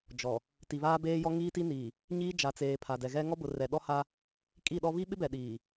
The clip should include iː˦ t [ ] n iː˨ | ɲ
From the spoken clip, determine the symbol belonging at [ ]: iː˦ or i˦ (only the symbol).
i˦